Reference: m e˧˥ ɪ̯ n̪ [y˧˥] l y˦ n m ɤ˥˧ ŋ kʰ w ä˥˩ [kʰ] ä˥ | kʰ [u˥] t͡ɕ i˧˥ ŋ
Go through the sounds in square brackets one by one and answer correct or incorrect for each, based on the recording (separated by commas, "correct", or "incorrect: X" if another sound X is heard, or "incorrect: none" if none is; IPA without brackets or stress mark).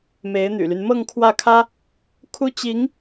incorrect: y̰˨˩, correct, correct